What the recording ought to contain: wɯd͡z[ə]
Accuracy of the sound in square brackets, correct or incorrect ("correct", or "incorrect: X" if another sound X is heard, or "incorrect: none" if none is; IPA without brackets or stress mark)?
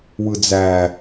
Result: incorrect: æ